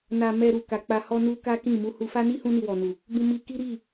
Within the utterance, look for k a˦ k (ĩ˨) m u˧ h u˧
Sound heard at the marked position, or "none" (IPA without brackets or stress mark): ĩ˦˨